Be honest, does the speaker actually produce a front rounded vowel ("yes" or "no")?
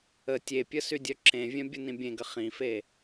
yes